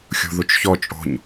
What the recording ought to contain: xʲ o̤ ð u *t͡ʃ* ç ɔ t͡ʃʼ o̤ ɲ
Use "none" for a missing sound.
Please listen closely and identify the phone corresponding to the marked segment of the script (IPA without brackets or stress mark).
t͡ʃ